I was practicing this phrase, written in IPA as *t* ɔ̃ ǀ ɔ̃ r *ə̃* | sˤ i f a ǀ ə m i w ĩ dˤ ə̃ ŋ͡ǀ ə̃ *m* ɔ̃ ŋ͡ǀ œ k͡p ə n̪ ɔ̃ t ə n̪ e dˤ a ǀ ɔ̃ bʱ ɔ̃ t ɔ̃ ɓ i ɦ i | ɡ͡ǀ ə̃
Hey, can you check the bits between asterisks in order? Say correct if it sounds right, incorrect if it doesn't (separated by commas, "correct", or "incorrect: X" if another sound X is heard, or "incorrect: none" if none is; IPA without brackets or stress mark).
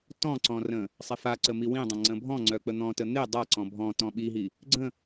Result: correct, correct, incorrect: bʱ